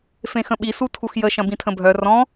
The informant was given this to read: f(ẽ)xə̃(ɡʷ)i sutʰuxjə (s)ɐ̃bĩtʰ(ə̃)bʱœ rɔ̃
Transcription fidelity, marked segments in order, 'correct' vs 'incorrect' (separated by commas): correct, incorrect, incorrect, correct